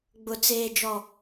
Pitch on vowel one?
high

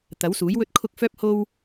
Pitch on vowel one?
rising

